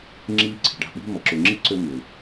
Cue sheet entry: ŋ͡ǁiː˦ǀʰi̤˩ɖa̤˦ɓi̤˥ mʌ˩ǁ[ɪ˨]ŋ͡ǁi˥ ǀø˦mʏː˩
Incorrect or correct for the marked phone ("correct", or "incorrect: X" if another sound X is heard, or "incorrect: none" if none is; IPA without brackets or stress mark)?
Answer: incorrect: ʏ˨